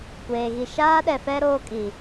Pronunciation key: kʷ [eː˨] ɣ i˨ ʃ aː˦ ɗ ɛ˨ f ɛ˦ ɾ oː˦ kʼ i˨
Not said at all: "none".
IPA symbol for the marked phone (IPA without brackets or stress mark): eː˨